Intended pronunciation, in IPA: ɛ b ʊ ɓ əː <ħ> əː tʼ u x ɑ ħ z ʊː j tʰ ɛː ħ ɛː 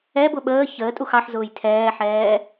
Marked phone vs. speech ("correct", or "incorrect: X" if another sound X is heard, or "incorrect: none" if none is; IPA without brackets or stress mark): incorrect: ç